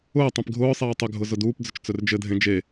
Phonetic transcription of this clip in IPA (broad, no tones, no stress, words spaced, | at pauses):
ʊː tˤẽpɡʱʊːsˤeː tˤʏɡʱʊ zʊduːpd͡zʏt͡ʃ t͡sɵrd͡ʒɘdʱẽ d͡ʒe